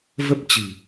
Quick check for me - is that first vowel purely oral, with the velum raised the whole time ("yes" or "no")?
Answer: yes